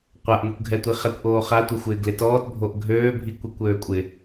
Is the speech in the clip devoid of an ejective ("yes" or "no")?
no